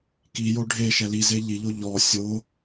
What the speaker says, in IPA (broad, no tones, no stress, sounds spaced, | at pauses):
k i j o ɖʱ e ʃ ɛ l i z e ʎ i ʎ o ʎ ɔ sʲ o